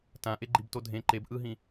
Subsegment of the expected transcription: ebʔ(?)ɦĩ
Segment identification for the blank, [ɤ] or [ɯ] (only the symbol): ɯ